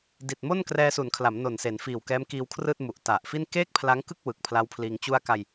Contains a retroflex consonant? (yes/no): no